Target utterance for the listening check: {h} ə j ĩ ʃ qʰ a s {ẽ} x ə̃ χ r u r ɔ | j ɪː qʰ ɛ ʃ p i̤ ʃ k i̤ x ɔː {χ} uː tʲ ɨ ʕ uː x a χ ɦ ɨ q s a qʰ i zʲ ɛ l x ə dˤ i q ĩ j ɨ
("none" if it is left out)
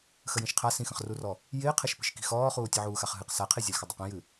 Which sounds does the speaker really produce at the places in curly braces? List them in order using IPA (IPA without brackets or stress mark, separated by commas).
x, ĩ, χ